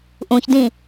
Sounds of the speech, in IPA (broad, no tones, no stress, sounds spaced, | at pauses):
ʔ ũ ç d ĩ